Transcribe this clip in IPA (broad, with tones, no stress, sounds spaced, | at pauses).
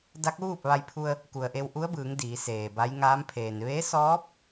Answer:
d a˧˥ k̚ ʋ uː˥˨ p̚ ʋ a˧ j pʰ u˧ ə̯ | k u˩ ə̯ ʔ e˧ w ʔ u˧˥ ə̯ b ɯː˩˧ ŋ d iː˩˧ s eː˩ b a˧˥ j ŋ aː˧˥ m pʰ eː˩ n ʋ e˧˥ s ɔː˧˥ p̚